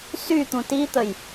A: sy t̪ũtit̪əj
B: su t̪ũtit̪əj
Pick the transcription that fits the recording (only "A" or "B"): A